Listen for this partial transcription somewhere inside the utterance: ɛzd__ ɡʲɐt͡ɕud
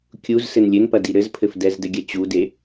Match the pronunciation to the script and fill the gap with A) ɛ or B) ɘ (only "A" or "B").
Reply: B